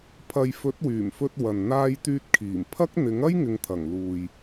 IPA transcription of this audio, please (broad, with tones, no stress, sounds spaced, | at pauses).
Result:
pʰ ɐ˨ j f ɵ˨˥ t̚ w yː˨˩ m f ɵ˧ t̚ w ɐ˨ n n̪ aː˧ j t̪ yː˧ t̚ kʰ iː˨˩ m pʰ ɐ˥ k̚ n̪ ɪ˨˥ ŋ ɐ˥ j ŋ ɪ˨ ŋ t̪ʰ ɐ˨˩ ŋ l uː˨ j